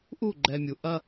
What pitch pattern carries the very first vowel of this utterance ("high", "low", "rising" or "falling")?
falling